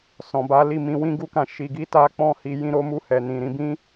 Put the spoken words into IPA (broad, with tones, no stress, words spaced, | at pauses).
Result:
sɔ̃˨ba˨˦li˦˨ mĩ˧wĩ˦ɡu˦kã˧ ʃi˧ɡi˦ta˦ k͡pɔ̃˦˨ hi˧ jĩ˧ɾo˧mu˧ hɛ˨nĩ˨ɾĩ˧ bĩ˦